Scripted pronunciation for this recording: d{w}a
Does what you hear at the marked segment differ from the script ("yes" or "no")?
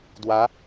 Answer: no